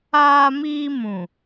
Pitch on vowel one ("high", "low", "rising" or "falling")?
high